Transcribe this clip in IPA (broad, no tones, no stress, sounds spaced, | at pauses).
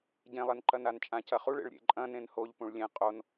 ɟ ẽ lˠ e n ǃ ɐ n a n t͡ʃʼ ã c ɐ χ u ɭ ḛ ɭ ɾʲ ḛ ǃʼ ɐ̃ n ẽ n h o ʎ p ũ ɭ lʲ ẽ qʼ o n